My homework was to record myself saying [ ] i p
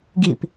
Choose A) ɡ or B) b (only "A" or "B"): A